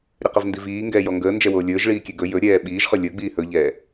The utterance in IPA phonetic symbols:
ɾʲəqəvndiviː ŋɡɛːjɔŋɡəː nd͡ʒɛwoːlʲɵːʒɭiː kʲɛɡɵ jɵɾʲɛː ɓiːʒχɵ lʲɵɡ͡biː hɵʎɛː

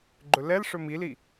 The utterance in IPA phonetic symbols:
ɡ͡ǃɵlɛlʂɵ mili

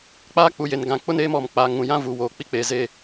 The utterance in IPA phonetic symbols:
k͡paː˦k͡pu˨je˨n ɡã˨k͡pʊ˦neː˦m ɔ˨m k͡pa˨ ŋũ˨jã˦ vuː˨woː˨k͡pi˦k͡peː˨ ze˦˨

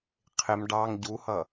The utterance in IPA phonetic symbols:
qʰɪm ɖɑŋ ɟuhʌ

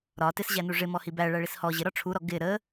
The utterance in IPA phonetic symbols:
ɾɒ tɪsʑænu ʐɪmɔhi bæɭæɭis hɔ ʑɪɾɒ ʈ͡ʂʰuɾɔ ɡɪ ɾə

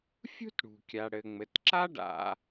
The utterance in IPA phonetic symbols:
fʲṳ˥tɽṳ˩kʲa˩ ɽɘ˩ŋ͡mɘ˩t ǁa˥ɖa̰˨

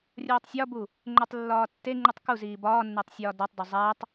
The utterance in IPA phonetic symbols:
rʲoːtˤsʲɒbu | ŋ͡ǃotˤlːɒːtːeŋ͡ǃutˤ ku ziːbɒːnːetˤ sʲɒːdɒtˤdo zˤætˤ

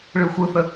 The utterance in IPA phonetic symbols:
ɭɯxʷɯθə

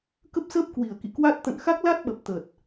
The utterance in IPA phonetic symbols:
kə˦˥p̚səː˦˥p̚ kwi˧˩ə̯kḭ˧˨kwa˦˥t̚ t̪ə̰˧˨nxa˦˥k̚la˦˥t̚ɓə˨˩p̚ t̪ə˨˩t̚

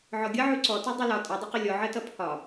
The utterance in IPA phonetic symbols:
ʕɔɡʲʌʕu ǀɔtu dˤilɒ tʼʌdˤʊqʊ lʲɔʕɜtʌ pʰɒ

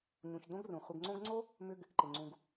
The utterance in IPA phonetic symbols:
ɲũ˨çdõ˥ɡrũ˩ χʷɪ˨ɡŋ͡ǀõ˦ɡŋ͡ǀo˥ | mʏ˥ɡ | ǃɪ˩ŋ͡ǀũ˨ɡ

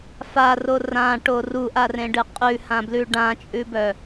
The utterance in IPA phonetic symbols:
faro rãʈo ruʔarẽɖɨ qʼʉhãblʉ ɖãt͡ʃʼʉbœ

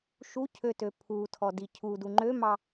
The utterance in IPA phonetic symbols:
ʃu cʰøtøpʰutʰɔ dicʰudu ŋ͡ǃømɑ

